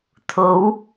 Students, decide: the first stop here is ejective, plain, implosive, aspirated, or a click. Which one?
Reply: aspirated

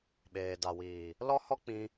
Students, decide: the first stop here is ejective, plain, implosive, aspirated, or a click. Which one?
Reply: implosive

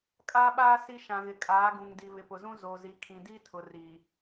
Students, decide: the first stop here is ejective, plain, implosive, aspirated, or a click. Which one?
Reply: ejective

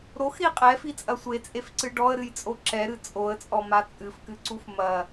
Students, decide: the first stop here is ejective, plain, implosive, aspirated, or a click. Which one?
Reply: ejective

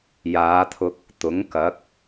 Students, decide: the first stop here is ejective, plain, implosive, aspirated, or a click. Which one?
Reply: aspirated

